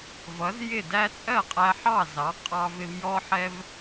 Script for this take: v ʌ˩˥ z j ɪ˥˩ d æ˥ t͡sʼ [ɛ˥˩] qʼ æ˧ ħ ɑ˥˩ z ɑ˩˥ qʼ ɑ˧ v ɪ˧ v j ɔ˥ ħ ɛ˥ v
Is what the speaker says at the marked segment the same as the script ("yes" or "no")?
no